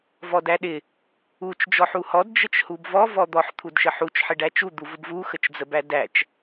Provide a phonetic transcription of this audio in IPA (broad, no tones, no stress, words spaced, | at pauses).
vɔdæɗɪ | ut͡ʃ d͡ʒɔħuhɔd d͡ʒət͡ʃhubvɔ vɔd̪ɔħ t̪ʰudʃəħut͡ʃ ħɪɖæt͡ʃu d̪uvʊbvu xət͡ʃd͡zəbædæt͡ʃ